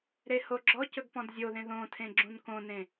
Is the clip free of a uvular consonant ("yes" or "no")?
yes